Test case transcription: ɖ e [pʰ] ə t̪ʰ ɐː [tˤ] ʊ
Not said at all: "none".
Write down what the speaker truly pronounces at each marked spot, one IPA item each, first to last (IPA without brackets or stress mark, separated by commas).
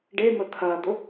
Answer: m, d̪